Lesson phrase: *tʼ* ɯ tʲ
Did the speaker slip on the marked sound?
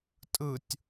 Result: no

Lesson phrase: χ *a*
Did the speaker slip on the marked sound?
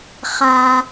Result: no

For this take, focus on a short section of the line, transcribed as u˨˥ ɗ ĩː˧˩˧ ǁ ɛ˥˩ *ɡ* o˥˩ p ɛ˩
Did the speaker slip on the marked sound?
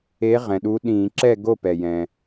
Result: no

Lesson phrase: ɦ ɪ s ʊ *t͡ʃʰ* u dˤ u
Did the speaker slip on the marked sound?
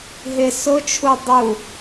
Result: no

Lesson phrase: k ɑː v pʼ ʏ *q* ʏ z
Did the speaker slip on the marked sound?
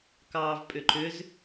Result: yes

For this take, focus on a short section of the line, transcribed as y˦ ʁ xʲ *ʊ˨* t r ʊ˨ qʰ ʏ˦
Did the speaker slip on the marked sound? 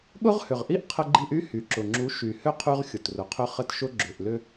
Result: no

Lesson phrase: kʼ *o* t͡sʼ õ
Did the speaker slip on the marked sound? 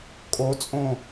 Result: no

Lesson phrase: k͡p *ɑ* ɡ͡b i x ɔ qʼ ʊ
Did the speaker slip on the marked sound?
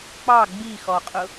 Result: no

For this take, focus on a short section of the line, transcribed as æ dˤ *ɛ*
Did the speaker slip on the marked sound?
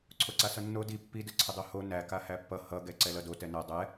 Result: no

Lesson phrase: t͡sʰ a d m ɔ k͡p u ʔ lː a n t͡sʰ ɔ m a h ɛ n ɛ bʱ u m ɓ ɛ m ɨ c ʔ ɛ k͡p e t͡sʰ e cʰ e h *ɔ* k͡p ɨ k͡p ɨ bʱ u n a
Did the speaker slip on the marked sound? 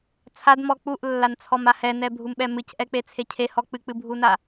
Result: no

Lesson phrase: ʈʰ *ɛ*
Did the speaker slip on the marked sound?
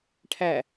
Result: yes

